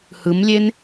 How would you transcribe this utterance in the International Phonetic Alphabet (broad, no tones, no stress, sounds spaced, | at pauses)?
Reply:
h ɯ m lʲ e n